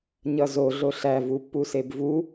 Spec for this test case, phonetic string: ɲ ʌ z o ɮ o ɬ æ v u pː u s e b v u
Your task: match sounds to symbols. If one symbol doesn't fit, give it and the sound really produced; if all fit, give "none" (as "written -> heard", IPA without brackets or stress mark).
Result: none